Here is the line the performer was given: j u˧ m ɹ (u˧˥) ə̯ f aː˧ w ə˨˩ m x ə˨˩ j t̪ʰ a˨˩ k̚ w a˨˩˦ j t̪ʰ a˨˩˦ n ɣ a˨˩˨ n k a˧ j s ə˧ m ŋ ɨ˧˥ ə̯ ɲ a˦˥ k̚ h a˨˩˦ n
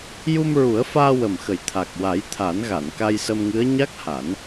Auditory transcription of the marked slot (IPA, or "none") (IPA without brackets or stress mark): u˨˩˦